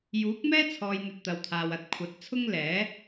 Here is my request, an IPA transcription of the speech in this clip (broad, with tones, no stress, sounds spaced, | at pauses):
j uː˨˥ k̚ m ɛː˥ t͡sʰ ɔː˨ j n̪ ɵ˨ t̚ t̪ ɐ˨ w t̪ʰ aː˨ w ɐ˨ t̚ kʷʰ ɐ˨˥ t̚ t͡sʰ ʊ˥ ŋ l ɛː˨˥